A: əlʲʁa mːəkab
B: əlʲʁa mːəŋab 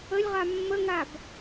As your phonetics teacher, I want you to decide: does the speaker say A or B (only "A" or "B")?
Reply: B